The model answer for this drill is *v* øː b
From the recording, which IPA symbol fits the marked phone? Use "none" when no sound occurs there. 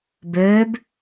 b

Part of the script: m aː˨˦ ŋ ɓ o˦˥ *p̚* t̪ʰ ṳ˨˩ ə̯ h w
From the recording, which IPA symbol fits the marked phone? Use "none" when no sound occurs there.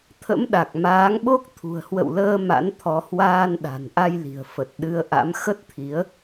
k̚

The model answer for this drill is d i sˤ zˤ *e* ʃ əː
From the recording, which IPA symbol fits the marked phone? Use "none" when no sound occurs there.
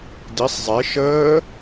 e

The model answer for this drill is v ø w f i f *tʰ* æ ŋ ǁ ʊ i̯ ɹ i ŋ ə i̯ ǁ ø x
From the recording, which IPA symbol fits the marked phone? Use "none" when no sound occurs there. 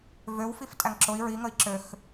tʼ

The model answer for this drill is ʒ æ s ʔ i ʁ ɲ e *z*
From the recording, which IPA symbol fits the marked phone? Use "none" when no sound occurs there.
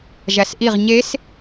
s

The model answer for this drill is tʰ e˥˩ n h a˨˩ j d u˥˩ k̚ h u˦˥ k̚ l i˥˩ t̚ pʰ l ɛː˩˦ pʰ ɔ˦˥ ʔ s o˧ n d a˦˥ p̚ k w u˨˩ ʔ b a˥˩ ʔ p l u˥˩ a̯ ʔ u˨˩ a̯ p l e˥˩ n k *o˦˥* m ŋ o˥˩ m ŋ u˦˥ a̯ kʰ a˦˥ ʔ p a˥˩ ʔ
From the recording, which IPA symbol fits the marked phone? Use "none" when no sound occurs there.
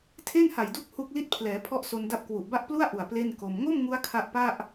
o˧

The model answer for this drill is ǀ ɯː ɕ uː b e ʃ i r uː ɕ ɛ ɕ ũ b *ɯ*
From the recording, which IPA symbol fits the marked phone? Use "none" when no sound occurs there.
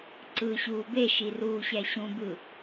ɯ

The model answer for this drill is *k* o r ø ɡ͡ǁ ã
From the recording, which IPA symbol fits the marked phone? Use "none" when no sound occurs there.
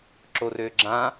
ǁ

